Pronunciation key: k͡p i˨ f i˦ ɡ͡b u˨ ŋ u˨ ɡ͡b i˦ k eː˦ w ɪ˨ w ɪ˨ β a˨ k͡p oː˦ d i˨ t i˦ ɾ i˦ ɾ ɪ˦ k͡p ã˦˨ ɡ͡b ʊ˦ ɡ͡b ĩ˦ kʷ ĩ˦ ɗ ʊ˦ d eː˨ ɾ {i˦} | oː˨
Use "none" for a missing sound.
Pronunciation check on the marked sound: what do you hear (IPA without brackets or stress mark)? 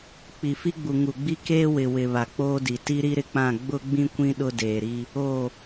i˦